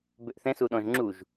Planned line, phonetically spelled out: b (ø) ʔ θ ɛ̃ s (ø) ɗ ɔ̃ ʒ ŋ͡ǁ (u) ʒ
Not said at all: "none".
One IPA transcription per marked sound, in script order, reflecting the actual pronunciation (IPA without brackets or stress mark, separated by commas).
ø, u, u